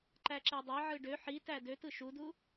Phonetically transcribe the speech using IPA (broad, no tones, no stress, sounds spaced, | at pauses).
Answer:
ǃ æ ǁ e dˤ e ʕ ɯ ɖ ø ħ i t æ d ø t ɯ ʃ u d u